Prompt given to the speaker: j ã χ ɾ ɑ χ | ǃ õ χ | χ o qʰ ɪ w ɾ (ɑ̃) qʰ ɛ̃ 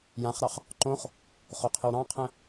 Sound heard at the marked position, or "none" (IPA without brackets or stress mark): ɑ̃